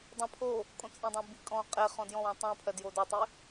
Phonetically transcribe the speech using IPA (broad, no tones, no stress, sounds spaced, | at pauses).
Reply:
dˤ ẽ pʰ o | kʼ õ t͡sʼ ẽ dˤ ɛ̃ b i kʼ ɔ̃ qʼ e χ ɔ̃ d j ɔ̃ w ɔ̃ tˤ ɛ̃ pʰ ɜ d j o d o tˤ i